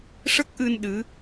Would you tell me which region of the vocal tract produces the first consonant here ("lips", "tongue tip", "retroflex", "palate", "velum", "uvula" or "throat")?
retroflex